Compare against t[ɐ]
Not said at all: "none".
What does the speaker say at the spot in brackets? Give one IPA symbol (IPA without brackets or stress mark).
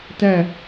æ